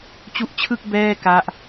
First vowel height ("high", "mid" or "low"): high